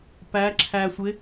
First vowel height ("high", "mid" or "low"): low